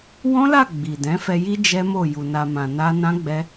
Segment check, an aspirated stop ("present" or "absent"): absent